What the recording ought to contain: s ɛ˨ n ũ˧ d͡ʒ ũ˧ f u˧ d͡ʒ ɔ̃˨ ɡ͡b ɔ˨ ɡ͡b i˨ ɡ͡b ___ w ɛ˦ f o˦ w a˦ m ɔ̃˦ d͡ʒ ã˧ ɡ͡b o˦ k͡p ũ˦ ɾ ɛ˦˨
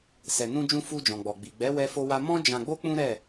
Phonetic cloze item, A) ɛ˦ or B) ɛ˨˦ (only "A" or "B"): B